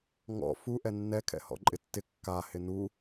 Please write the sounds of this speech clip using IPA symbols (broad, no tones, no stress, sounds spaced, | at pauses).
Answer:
ŋ ɔ̰ f u ʔ ɛ nː ɛ kʰ ɛ̰ h ɔ̰ ǃʼ ɪ tː ɪ kː a h ɪ n u